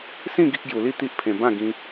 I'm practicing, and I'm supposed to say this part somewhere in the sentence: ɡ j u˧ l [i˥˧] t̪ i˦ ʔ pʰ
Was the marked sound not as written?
no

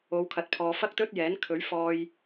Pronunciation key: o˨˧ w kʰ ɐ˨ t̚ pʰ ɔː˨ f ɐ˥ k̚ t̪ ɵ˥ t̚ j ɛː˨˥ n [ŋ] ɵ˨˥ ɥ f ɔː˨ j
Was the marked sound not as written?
yes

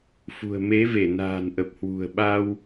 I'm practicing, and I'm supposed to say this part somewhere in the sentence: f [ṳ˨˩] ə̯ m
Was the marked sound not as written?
no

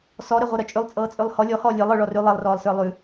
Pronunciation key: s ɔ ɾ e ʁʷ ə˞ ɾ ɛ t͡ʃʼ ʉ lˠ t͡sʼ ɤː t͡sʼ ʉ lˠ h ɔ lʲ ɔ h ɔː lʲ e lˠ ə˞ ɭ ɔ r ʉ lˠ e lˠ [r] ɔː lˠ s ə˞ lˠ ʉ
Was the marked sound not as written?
no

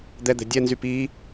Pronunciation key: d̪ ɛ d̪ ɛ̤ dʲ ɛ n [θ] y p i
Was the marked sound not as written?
yes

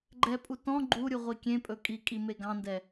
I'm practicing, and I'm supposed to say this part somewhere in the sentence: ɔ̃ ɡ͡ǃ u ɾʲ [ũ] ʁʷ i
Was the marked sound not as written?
yes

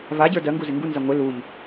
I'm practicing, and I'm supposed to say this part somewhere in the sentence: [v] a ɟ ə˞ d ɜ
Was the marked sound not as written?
no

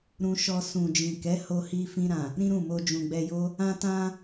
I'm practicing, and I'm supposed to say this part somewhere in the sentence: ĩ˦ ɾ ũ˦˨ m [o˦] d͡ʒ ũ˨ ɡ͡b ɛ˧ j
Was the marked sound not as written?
yes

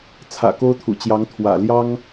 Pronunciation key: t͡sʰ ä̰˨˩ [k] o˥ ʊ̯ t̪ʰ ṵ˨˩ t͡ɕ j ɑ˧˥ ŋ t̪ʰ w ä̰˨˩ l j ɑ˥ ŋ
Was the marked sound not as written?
no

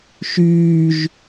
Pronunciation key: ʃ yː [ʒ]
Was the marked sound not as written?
no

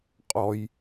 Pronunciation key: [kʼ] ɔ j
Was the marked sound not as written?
yes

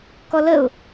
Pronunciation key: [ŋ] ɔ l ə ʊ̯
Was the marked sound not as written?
yes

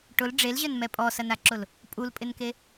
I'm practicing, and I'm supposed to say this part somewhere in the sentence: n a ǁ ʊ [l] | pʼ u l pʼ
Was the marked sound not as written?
no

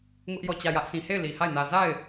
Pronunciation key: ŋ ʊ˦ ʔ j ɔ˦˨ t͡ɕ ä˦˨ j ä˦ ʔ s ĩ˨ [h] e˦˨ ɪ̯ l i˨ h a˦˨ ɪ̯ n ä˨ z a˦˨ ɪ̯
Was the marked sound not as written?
no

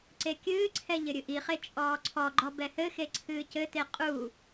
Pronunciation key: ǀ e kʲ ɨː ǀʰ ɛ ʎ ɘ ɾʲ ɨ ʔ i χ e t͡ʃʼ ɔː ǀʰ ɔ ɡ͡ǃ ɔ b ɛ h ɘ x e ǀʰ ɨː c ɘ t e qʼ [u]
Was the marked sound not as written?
no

